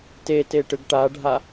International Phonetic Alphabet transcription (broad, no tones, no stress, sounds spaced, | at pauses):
t e t e ʈ ɯ ɡ ʈ a ɖʱ a